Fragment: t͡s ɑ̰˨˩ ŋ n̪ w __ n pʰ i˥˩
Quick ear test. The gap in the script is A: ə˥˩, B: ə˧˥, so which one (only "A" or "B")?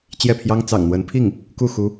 B